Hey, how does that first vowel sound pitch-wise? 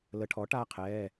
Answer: rising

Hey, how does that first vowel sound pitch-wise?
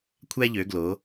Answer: high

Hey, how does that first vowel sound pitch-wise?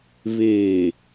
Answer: low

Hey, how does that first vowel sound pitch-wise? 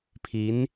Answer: rising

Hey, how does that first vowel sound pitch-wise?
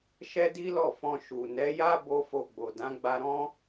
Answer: high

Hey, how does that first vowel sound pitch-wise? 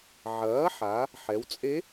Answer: rising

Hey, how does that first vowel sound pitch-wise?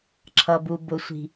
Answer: low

